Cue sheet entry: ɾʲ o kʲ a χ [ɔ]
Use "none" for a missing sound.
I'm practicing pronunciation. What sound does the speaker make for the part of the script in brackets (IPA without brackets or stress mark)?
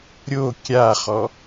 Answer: ɔ